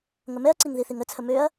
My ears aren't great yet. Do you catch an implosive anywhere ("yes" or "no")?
no